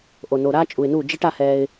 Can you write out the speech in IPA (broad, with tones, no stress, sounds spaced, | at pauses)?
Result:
ʔ o˨ n o˨ ɾ aː˦ t͡ʃʼ u˨ ɪ̯ n u˦˨ d͡ʒ i˦ ʈ a˦ h ɛː˦ ɪ̯